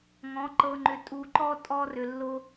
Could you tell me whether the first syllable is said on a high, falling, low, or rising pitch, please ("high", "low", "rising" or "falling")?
rising